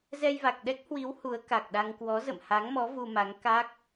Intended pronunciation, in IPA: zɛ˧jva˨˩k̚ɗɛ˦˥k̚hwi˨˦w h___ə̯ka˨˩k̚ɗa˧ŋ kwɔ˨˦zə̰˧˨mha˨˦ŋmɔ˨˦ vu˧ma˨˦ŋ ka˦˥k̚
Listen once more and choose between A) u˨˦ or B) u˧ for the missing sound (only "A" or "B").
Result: A